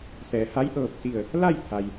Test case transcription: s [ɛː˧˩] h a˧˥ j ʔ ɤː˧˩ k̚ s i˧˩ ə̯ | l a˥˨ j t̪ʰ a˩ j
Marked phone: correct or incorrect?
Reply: incorrect: ɛː˩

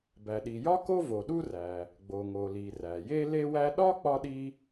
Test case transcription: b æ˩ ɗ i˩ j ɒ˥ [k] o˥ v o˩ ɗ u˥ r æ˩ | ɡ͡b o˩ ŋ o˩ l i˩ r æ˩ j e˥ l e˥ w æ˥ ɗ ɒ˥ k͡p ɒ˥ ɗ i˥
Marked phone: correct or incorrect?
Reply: correct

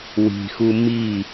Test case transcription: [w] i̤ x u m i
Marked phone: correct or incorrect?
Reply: correct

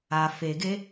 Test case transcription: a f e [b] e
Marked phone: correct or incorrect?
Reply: incorrect: ɡ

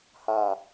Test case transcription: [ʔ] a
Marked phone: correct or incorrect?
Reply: incorrect: h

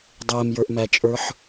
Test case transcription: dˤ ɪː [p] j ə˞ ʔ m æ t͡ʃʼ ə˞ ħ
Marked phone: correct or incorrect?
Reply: incorrect: m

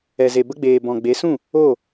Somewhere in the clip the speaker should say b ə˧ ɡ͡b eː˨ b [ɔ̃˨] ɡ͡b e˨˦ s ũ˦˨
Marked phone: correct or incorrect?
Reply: correct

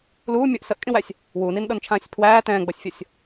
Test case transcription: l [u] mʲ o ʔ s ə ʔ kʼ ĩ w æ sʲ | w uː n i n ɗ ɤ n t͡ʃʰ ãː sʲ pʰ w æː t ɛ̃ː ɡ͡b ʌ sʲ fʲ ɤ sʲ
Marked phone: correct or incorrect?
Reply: incorrect: uː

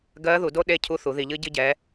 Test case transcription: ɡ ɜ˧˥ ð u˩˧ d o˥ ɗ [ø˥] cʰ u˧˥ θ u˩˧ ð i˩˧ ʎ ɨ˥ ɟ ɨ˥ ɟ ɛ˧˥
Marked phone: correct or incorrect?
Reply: incorrect: e˥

